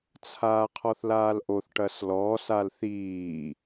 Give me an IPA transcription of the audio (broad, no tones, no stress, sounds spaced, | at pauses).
t͡sʰ aː qʰ ɔ θ l aː l ʔ o θ ʈ ɐ s l ɔː s a l θ iː